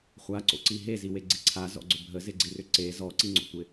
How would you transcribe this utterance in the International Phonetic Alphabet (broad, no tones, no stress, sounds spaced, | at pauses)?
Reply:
χʷ a ǀ o̰ ǀ i ɦ e z i w e ɡ͡ǀ i ǀʰ a z ɔ̰ ɡ͡ǀ ʏ bʱ ə z ɪ ɡ͡ǀ i r ʏ ǀ e z ɔ ǀ i ŋ͡ǀ o̰ tʷ ɪ